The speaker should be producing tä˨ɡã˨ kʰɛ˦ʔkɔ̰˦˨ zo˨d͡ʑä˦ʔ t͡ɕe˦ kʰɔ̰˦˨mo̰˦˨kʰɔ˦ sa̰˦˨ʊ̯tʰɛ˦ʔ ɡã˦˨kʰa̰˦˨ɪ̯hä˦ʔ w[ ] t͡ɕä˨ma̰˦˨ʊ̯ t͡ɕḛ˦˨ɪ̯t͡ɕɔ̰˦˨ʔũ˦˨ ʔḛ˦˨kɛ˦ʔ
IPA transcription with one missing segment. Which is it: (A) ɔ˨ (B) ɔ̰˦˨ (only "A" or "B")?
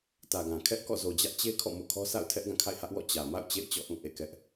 B